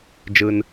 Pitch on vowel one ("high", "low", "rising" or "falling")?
high